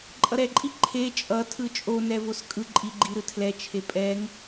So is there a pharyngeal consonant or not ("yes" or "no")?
no